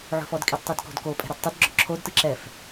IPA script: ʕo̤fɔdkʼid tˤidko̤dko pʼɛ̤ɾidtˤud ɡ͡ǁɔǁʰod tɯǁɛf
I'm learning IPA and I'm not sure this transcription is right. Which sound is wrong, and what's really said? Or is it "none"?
none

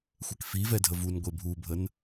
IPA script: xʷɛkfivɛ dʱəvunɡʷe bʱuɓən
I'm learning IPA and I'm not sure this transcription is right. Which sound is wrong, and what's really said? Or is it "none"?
ɓ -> bʱ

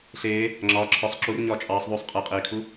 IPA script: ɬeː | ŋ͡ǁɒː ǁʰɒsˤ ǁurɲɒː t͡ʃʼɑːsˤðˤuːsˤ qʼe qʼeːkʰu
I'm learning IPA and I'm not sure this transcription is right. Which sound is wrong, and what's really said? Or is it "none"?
none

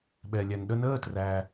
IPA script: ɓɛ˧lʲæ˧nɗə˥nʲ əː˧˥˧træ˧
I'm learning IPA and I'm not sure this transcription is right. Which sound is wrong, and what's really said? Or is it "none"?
nʲ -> n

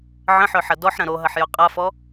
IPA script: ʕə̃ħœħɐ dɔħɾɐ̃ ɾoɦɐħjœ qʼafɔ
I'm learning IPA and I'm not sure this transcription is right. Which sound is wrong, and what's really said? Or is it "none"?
none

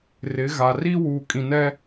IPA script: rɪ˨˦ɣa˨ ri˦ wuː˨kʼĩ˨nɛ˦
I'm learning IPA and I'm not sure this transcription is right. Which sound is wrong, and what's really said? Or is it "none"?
none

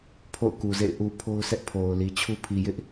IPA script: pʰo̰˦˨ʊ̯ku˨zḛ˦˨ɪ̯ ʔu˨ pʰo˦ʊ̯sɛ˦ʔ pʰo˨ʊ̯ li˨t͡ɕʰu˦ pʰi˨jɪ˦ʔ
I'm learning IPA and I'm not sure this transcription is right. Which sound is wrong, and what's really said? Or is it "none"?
none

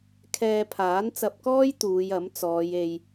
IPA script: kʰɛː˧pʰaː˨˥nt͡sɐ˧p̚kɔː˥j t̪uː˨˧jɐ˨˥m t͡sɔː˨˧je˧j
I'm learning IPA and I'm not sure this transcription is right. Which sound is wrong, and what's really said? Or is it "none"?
none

